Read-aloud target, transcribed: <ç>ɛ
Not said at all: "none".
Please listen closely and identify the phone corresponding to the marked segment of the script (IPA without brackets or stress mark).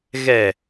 ɣ